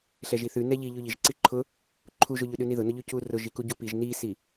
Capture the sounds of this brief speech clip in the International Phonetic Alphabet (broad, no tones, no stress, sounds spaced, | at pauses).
ɬ ɛ ʒ i θ ʉ n ɛ ʎ i ʎ ʉ ʎ i ʒ ǀ i ǃʰ ʊ | ǃʰ u ʒ ʊ ʎ ʉ ɗ ʉ n i ð ʊ n ʊ ʎ ʉ c u r ʊ ʒ i k u ɟ u p i ʒ n i s i